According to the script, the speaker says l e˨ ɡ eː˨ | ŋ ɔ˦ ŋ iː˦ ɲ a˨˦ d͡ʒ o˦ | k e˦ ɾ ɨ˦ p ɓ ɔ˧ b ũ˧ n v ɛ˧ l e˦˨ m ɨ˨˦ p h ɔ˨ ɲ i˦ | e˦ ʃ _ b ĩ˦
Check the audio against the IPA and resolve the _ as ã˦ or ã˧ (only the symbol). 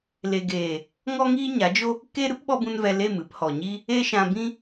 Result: ã˧